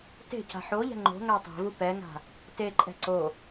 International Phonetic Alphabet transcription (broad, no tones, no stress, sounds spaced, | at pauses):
t e̤ c a̤ ħ o ʎ ɛ̤ ŋ͡ǃ o̤ ŋ a tˤ ɛ̤ v u p ɛ ŋ a̤ | t e ǃʼ ɛ̤ ǀ o